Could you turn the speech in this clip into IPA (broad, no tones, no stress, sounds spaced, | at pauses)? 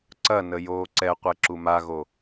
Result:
ǀ ɐ n ə j oː ǀ ɛ qʷ ɛ ǁ u m a ɣ o